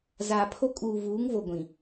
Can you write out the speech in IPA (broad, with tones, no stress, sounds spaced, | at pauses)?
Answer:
z aː˨ pʰ o˦ kʼ uː˨ v uː˨˦ ŋ v o˨ ɡʷ ĩ˨